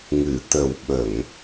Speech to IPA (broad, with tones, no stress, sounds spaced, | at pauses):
ŋ ɨ˨˩˨ t̪ ə˨˩ w ɓ ə˨˩˨ ŋ